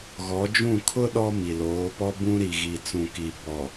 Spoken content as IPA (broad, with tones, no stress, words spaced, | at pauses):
ɣɔ˨˦d͡ʒũ˦˨ kʰʊ˦ ɗɔ˦mi˨loː˨˦pɔ˦ bũ˦ ɾi˨ɣi˨t͡sũ˨ki˨ bɔ˨